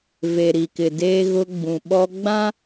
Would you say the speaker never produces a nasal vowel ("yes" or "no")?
no